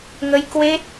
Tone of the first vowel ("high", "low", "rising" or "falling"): rising